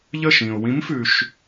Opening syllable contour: falling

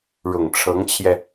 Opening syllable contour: low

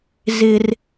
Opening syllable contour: high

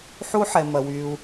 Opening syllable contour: high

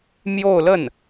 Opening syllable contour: falling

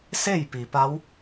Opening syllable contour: falling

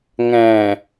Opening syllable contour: low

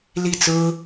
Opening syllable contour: falling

